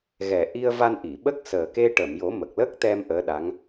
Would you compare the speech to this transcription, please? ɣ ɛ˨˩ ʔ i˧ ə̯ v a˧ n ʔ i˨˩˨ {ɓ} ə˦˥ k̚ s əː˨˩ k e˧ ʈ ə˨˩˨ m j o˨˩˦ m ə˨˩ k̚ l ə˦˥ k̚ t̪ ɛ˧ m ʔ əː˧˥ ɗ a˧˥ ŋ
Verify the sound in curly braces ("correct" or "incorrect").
correct